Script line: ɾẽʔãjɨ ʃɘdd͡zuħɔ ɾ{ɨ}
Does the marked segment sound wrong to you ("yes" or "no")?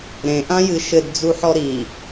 yes